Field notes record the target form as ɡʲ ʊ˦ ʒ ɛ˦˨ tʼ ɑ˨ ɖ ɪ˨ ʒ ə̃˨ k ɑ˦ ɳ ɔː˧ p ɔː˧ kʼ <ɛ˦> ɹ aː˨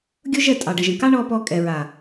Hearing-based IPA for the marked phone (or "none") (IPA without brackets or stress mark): ɛ˨